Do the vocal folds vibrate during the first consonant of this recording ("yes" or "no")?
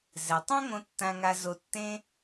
yes